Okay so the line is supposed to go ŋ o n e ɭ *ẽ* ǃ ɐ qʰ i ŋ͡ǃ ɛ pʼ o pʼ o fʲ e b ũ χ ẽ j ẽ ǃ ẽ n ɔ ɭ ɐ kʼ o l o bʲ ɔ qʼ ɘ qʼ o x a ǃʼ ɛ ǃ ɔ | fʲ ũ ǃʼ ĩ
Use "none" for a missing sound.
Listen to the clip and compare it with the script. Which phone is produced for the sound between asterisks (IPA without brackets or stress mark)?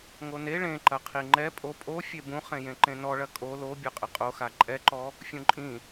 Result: ẽ